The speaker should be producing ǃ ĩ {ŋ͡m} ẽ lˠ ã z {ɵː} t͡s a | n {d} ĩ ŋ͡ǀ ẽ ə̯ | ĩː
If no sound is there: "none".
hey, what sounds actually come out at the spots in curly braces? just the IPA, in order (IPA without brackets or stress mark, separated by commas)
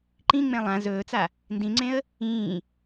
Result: ŋ͡m, ɵː, d